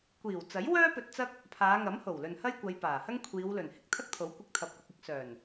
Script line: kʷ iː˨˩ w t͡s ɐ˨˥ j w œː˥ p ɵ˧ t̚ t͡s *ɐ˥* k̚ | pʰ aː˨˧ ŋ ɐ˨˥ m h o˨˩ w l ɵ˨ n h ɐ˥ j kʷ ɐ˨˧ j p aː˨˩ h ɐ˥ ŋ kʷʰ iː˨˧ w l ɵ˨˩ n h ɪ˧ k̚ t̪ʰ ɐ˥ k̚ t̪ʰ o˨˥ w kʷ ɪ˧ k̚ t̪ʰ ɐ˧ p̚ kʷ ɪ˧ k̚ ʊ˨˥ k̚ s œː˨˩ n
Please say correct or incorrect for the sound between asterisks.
correct